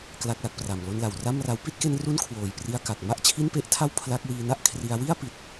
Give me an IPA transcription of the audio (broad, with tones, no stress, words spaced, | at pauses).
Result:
kla˦˥k̚la˨˩k̚pra˨˩m lo˧nla˨˩wra˥˩mra˦˥w pi˥˩t̚ke˧nru˦˥n kʰwoː˨˩jpri˧a̯ka˨˩k̚ ma˦˥ʔt͡ɕʰi˥˩npe˦˥ʔtʰa˥˩w pʰla˦˥k̚ wiː˧na˥˩ʔkʰri˧a̯ wi˥˩a̯pi˨˩t̚